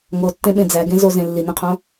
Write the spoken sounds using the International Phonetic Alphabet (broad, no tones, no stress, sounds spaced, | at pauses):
ŋ o tː ẽ ɓ ẽ d͡z æ ɡ ẽ z o z ẽ lː i n ẽ qʰ õ